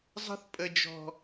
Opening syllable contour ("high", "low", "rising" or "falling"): high